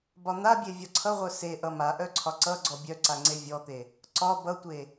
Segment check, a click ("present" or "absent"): present